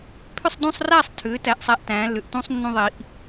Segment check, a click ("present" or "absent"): absent